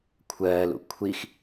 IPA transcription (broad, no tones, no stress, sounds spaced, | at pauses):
kʷʰ ɜː l ṵ kʷʰ i x